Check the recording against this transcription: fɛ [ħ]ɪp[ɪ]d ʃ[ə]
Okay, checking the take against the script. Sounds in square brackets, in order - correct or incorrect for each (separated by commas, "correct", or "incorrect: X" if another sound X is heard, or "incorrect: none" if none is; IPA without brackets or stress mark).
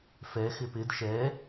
incorrect: x, correct, incorrect: ɛ